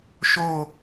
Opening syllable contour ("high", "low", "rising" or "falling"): falling